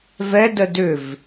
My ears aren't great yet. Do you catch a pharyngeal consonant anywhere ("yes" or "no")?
no